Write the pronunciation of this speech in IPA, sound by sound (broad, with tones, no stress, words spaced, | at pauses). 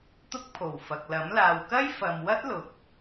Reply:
t̪ʊ˥k̚pʰo˨˩wfɐ˨k̚lɐ˨˥m laː˨wkɐ˥jfɐ˨mwɐ˥t̚ lʊ˨k̚